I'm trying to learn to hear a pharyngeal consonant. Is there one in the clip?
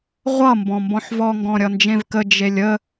yes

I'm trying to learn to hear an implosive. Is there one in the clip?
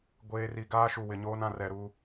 no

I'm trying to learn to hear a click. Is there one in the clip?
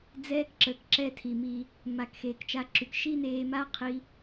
yes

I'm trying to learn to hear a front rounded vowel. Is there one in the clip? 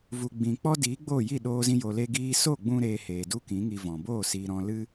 no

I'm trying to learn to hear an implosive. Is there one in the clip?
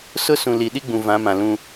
yes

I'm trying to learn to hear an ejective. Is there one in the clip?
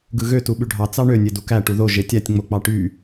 no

